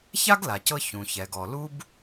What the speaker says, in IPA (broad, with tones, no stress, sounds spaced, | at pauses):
ç a˥ ɡ l a˩ c ɤ˧ ç ũ˩ ç ɛ˩ ɡ ɔ˩ l u˥ b